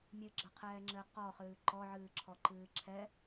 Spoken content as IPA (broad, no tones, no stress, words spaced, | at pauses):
mʲɨɡ͡ǁɐqʰɛːŋ͡ǁɘː qɔχɨː ǃɔʕɨːǁʰɔǃɨː ǁʰɛ